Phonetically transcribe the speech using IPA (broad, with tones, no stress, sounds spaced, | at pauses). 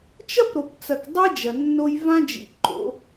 t͡ʃ ɐ˦ p ɾ o˨ p t͡s ɐ˨ k dˤ i˦ d͡ʒ ɐ˨ nː o˦ j v ã˦ d͡ʒ ḭ˨ ǃ o̰˨˦